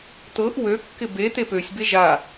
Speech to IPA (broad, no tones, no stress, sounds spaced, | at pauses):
t̪ ɤ ʔ w ø kː ɪ b e t̪ e p ø sʲ b e ʒ a